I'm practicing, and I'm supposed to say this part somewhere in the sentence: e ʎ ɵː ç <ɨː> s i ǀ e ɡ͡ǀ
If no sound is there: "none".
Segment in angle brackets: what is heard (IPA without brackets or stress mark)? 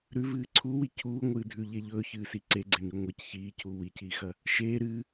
ɨː